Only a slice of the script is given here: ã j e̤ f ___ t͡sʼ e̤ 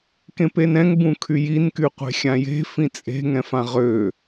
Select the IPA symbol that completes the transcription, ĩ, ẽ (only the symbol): ĩ